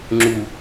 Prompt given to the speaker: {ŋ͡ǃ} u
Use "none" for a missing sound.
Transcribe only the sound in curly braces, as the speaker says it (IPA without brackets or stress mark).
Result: ŋ͡ǁ